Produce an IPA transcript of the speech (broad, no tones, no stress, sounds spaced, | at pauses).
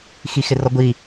x i x ɪ r ɔ ɡʷ i